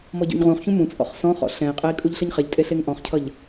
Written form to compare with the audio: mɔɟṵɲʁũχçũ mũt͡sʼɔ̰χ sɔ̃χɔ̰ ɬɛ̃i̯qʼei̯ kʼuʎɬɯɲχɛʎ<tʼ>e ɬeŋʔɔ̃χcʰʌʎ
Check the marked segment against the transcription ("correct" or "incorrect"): correct